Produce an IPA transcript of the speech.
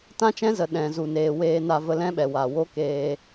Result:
t ã˦ t͡ʃ ɛ̃˦ z ə˨ ɗ ɛ̃˨ z u˨ n eː˨ w eː˧ n a˧ v ə˧ l ɛ̃˦ ɓ ɛ˨ w a˨ w o˦ k eː˧

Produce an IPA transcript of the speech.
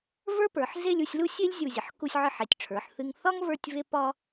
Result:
v ə˞˥ p ə˞˩˧ ħ z e˥˧ lʲ u˧ sʲ l u˥ sʲ e˥ lʲ zʲ u˧˩ zʲ ə˩˧ ħ k u˧ sʲ ʕ ɨ˧ ħ e˩˧ tʲ ʈ͡ʂʰ ə˞˩˧ ħ θ ɨ˧ ŋ θ ɒ˥ ŋ v ə˞˥˧ tʲ v e˥ p ɒ˥

